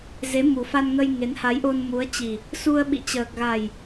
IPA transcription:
z e˨˦ m u˨˩ f a˧ n ŋ ə˧ j ŋ e˨˦ n h a˨˦ j ʔ o˧ n m u˨˦ ə̯ t͡ɕ i˨˩ | s u˧ ə̯ ɓ ḭ˧˨ t͡ɕ əː˨˩ k̚ ɣ a˨˩ j

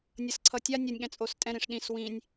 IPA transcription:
nʲ ʌ s ǀʰ ʌ tʲ a nʲ ʌ nʲ ɠ ɛ̃ t͡sʼ o s tʼ ɛ̃ ɾ ĩ ʂ ɗ ĩ s w ĩ nʲ

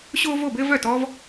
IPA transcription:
ɕ o˦ v o˥˩ b ɘ˦ v œ˥˩ t ɔ˦ v

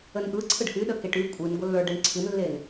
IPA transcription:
ə n ʔ ɯ ǀʰ ɯ ɖ h y ɗ ə k e ʈ y kʷʼ ɨ n ɡʷ ə lː ə˞ ɖ e ɳ ǀʰ ɨ n lː e n

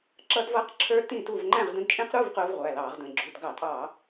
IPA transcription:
ǁ ʌː˦˥ d v ʌː˦˥ q ǁʰ ə˞˦˥ t ĩ˥˨ t u˥˨ v ŋ͡ǃ æ̃˥˨ ʁ d ə̃˦˥ d t͡ʃʼ ĩ˦˥ q ɾ u˧˥˧ v q ʊː˦˥ v ʁʷ æ˩˧˩ l ɑː˧˩˧ ʁ d ə̃˩˧˩ ɡ͡ǁ u˩˧˩ d ɡ ɑ˧˩˧ tʼ ɑ˧˩˧

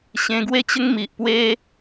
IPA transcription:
ɕ ẽ˧ ɡ w e˥˧ t͡ɕ ə˦ ŋ m i˨ ʔ p w e˦

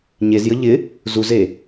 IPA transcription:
ɲ e z j ə ʎ ɪ | z u z e

